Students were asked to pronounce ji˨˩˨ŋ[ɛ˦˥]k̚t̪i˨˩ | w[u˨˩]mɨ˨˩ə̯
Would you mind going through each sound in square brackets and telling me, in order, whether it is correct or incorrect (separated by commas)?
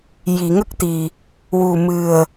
incorrect, correct